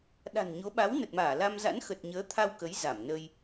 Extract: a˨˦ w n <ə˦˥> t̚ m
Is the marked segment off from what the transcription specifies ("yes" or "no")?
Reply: yes